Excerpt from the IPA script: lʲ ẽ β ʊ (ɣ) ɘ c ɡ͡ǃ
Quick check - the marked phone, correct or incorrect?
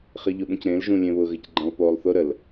correct